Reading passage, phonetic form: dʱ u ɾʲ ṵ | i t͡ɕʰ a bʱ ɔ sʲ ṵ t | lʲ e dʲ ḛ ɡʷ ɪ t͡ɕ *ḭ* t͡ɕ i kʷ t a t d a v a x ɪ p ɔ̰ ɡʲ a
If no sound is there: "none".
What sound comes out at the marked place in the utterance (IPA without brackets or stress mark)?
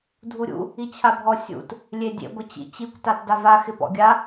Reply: ḭ